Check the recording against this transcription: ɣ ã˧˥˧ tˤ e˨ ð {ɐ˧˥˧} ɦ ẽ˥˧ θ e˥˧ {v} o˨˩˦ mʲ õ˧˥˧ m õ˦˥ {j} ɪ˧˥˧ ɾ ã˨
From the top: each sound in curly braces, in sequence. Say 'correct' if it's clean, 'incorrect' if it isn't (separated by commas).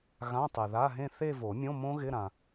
incorrect, correct, incorrect